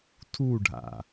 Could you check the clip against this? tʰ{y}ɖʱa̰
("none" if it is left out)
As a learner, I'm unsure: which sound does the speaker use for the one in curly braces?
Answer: u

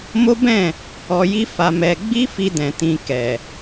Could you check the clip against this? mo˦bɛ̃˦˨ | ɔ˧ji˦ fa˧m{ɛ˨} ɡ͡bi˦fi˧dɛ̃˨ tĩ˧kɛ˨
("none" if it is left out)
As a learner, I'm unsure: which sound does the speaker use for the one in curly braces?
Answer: ɛ˧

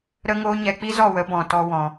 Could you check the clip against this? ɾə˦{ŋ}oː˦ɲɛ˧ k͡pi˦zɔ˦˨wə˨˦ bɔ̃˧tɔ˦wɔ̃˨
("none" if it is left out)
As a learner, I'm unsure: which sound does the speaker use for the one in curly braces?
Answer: ŋ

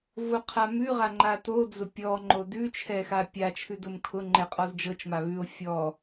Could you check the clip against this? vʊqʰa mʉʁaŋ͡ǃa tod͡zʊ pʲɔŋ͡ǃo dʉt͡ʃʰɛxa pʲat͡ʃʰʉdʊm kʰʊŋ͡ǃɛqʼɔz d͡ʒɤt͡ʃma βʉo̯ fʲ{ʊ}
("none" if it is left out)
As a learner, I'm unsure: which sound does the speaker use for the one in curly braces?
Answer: ɔ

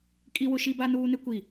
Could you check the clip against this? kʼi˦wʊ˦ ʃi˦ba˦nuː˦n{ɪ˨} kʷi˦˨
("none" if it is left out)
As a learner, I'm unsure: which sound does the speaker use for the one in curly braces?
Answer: ɪ˦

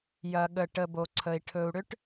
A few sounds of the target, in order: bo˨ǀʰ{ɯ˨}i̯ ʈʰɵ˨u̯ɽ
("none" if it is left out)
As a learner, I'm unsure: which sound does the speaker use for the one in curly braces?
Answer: ə˨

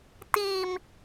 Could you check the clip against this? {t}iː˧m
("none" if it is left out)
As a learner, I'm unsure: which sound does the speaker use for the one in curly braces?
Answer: t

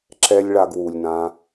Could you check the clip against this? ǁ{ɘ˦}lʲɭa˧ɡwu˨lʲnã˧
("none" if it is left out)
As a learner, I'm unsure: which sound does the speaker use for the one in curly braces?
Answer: ɛ˦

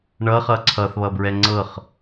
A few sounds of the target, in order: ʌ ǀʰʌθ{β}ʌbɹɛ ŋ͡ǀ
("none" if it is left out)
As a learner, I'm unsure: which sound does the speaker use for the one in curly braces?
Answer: β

